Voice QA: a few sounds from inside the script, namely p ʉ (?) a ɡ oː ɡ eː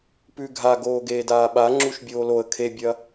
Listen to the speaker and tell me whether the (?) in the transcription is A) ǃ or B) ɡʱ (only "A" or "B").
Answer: B